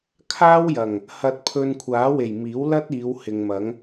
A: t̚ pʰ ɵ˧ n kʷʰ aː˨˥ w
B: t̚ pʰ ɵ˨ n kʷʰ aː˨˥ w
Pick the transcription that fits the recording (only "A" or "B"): A